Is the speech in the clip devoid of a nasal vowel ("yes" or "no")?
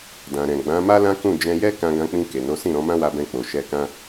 no